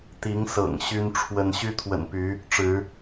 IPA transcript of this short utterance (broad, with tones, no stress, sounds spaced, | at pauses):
t̪ i˨˦ ŋ s ɤ̰˨˩ ŋ ɕ y˦ n ʈ͡ʂʰ w ə˦ n ɕ y˦ t̪ʰ w ə̰˨˩ n p y˨˦ | ʈ͡ʂ ɻ̩˨˦